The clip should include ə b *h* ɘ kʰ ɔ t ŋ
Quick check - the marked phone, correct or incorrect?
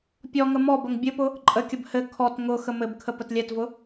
correct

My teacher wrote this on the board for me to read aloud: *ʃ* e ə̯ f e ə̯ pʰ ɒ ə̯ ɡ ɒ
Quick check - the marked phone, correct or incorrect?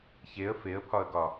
incorrect: ç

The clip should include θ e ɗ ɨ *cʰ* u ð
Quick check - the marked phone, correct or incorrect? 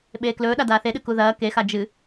incorrect: k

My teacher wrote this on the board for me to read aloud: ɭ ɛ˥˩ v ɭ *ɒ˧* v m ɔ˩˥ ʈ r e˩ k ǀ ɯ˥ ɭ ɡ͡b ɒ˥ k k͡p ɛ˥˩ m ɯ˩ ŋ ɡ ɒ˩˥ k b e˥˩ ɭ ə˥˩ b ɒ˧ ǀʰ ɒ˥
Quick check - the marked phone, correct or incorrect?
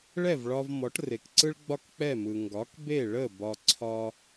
correct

